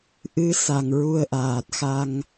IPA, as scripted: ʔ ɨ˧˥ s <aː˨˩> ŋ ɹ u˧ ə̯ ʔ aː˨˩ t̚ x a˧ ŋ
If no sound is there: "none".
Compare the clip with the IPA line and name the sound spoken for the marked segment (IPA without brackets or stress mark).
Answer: a˨˩